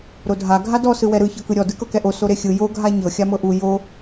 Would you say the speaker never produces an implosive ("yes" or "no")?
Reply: yes